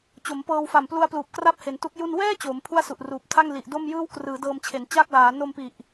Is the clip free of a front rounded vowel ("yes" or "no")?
yes